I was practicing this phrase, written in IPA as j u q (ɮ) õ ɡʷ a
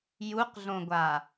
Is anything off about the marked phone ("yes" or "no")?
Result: no